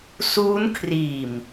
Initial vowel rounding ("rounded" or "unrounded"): rounded